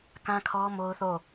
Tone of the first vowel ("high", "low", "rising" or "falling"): high